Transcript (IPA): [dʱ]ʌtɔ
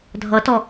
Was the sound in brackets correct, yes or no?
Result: yes